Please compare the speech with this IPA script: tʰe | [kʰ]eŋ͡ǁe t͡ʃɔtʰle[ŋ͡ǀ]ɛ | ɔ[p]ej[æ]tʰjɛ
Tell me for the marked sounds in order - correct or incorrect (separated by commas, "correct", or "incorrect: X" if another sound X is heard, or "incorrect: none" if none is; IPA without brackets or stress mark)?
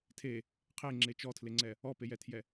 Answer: incorrect: qʰ, correct, correct, incorrect: ɛ